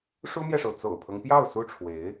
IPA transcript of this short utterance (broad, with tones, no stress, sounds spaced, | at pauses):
ʂ u˥ m j ɛ˨ ʂ o˩ ʊ̯ t͡s o̰˨˩ ʊ̯ pʰ ɤ˦ ŋ p j ɑ˥˩ ʊ̯ s u˥ ʈ͡ʂʰ w e˧˥ ɪ̯